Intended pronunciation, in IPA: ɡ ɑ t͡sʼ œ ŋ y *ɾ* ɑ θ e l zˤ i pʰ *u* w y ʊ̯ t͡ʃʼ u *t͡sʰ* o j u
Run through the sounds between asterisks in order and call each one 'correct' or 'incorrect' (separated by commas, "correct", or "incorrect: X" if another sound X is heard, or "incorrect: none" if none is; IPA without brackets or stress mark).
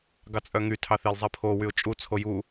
incorrect: tʰ, incorrect: o, correct